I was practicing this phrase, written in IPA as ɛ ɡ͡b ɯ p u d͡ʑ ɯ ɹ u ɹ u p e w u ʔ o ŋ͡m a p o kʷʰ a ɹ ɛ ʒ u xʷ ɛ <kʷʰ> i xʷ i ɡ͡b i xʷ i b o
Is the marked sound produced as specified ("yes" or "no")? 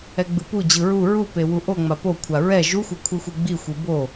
yes